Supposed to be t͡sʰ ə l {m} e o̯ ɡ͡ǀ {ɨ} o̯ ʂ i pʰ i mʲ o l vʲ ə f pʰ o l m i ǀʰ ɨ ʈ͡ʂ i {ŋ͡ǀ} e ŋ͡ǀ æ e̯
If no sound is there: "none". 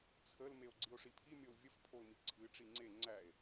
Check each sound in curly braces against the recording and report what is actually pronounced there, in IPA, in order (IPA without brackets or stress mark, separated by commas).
m, i, ŋ͡ǀ